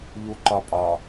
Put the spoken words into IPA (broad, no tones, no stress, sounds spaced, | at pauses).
ʎ u ǃ ɒ pʼ ɒ